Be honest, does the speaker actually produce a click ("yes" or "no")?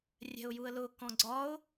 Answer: yes